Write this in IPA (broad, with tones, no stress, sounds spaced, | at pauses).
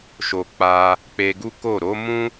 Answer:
ʃ o˨ k͡p a˧ | k͡p e˧ ɡ u˦ k o˦˨ ɾ o˨˦ m ũ˦